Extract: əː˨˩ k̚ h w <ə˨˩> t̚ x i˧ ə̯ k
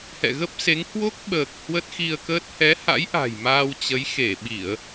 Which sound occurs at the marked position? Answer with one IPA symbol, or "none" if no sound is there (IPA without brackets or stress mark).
ə˦˥